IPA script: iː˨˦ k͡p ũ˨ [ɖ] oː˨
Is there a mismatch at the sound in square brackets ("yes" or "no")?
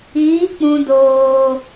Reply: yes